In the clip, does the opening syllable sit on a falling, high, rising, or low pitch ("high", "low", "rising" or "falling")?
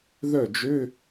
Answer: falling